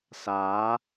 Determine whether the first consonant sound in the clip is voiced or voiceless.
voiceless